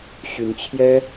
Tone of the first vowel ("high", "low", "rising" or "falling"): rising